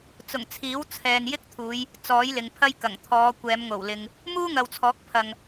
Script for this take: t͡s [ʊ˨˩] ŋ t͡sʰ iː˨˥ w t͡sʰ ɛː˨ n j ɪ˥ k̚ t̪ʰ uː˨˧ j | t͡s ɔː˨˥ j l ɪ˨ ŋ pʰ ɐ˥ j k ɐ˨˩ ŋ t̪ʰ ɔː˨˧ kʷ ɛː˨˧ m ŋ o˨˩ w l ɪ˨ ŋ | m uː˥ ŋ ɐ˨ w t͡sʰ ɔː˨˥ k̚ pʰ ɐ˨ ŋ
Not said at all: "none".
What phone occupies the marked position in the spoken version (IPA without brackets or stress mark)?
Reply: ʊ˨˩